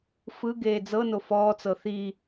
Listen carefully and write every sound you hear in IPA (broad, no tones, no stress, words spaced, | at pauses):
fɯɡeː d͡zɤno fɔːt͡sɤ θi